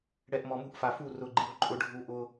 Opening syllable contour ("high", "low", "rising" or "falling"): low